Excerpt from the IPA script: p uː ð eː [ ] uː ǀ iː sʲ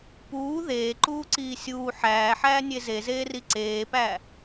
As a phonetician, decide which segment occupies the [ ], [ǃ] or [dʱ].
ǃ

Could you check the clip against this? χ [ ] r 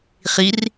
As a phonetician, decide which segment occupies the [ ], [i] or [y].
i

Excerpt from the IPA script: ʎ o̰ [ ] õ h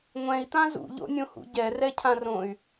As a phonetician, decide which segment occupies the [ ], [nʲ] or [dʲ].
nʲ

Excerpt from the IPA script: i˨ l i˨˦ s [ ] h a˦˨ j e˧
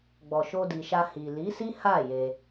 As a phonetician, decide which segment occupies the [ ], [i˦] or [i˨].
i˦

